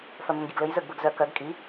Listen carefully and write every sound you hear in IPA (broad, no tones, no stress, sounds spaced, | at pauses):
f œ m ʉ m ɡʲ ɘ ɡ l ɘ j z ə˞ ɡ b ə˞ ɡ z œ k œ ɡ kʼ i